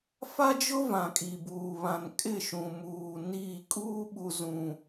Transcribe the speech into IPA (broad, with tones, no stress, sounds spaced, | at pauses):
f a˦ d͡ʒ ʊ˦ v ã˨ kʼ i˨ b uː˨ β ã˨ n kʼ ɪ˦˨ ʃ ũ˨ m uː˨ n i˦˨ kʼ uː˦ ɓ u˨ z ũ˨